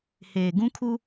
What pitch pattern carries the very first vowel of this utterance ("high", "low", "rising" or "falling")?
low